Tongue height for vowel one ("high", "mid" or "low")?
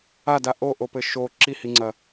low